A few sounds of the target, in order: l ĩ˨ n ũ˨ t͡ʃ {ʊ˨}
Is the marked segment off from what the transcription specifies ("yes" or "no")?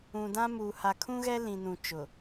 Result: no